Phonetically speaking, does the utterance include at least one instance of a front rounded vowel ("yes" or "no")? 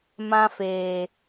no